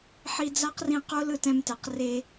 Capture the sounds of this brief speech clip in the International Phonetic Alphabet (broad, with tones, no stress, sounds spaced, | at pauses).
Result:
ħ i˧ d͡z a˦ q r ĩ˧ q o˦ l ɯ˦˨ t ɛ̃˧ m t ɛ˨ q r e˧